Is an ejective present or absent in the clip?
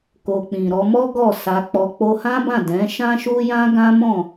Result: absent